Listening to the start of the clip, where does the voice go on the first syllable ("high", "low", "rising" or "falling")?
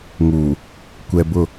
low